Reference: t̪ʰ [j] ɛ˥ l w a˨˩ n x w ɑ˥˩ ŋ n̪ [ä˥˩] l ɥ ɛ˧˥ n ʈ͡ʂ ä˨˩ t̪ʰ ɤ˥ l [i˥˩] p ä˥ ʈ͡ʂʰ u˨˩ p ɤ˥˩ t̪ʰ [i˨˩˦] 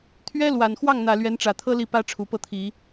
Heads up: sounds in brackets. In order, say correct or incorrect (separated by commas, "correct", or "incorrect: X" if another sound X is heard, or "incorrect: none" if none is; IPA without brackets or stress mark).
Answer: incorrect: ɥ, incorrect: ä˨˩, correct, correct